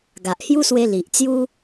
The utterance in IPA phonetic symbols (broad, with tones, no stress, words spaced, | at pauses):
ɡa˨ʔ hju˦swe˧ li˨ʔt͡sju˦